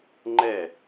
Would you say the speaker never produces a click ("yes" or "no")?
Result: no